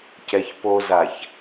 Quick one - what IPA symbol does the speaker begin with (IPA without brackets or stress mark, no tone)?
c